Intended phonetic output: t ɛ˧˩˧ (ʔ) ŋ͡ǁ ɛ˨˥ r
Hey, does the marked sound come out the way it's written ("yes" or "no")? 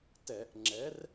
yes